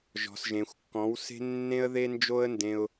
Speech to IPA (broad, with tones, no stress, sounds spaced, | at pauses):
ʒ ɔ̤˨ s ʒ ẽ˨ xʷ kː ɔ̃˨˦ w s e̤˦ nː ẽ˦ ə̯ ð e˦ n d͡ʒ o˦ ə̯ n d ẽ˧ ʊ̯